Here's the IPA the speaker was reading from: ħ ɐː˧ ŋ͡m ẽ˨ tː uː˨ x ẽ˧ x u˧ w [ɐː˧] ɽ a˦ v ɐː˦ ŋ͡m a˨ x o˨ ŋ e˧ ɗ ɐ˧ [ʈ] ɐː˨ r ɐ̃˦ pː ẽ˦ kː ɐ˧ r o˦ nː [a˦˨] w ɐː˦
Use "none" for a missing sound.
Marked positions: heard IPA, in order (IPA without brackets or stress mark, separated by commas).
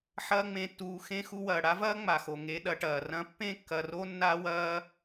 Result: ɐː˨, ʈ, a˦